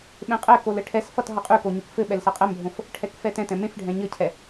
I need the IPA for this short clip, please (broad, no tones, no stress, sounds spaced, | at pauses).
ɓ ẽ qʼ ɛ k o l ɘ ʈʰ ɛ s f ʌ t ɦ ʌ qʼ y k o ɲ y k f ɘ ɓ ɛ l s ʌ qʼ ɛ m bʱ õ f | ʈʰ ɛ k f ɛ t ɛ̃ t ɛ̃ m ẽ f ɖʱ ɛ̃ ɲ ɘ cʰ ɛ